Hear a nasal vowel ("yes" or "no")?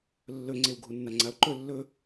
no